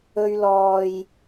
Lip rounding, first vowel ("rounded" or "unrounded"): rounded